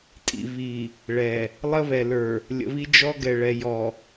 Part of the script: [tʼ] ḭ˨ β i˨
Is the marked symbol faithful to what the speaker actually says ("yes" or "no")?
yes